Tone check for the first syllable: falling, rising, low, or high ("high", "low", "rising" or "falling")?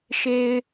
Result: low